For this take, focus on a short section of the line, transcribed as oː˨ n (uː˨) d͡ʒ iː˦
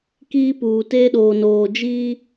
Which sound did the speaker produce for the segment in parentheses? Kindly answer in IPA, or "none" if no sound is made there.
oː˨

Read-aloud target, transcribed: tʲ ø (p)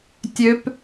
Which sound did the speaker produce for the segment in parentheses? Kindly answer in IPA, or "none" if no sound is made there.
p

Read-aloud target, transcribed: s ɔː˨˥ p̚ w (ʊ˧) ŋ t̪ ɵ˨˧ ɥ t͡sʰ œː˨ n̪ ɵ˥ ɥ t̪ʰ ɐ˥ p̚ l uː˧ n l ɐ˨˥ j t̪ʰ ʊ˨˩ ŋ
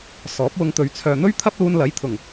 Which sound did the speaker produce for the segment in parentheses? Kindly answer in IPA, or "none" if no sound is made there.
ʊ˧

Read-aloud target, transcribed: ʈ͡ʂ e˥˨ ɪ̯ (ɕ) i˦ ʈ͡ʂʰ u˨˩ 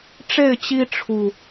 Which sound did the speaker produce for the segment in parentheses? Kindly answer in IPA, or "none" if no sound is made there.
t͡ɕ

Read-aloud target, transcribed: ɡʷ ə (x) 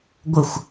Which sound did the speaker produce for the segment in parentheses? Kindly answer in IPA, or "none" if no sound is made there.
xʷ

